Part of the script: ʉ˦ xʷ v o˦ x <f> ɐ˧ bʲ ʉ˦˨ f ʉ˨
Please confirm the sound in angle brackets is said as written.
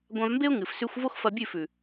yes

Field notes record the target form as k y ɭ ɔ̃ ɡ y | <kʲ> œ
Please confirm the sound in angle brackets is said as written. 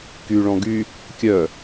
yes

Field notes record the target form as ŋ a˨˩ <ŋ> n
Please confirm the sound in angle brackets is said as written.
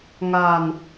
no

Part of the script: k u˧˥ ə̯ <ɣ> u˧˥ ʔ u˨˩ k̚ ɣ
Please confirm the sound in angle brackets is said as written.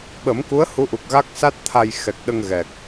no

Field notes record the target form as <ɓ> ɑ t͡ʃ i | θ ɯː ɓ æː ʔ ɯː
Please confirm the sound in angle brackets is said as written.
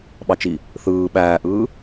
yes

